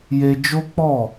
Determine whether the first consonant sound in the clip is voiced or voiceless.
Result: voiced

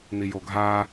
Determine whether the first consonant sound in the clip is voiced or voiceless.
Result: voiced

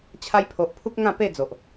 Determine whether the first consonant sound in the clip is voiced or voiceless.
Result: voiceless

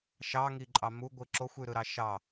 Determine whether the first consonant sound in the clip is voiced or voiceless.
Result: voiceless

